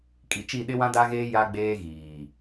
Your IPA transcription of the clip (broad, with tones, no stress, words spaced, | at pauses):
kʼi˨t͡ʃi˦˨ ɗɪ˦wã˦ da˦ɣeː˦ ja˦ɡ͡beː˦ɣiː˨